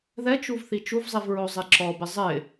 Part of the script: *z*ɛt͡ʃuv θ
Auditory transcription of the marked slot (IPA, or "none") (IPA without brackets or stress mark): ð